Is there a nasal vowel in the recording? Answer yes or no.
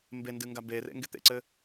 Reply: no